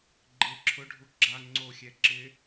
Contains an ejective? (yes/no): no